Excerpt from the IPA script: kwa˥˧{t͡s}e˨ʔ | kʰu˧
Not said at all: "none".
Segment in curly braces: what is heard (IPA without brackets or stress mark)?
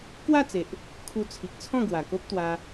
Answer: t͡s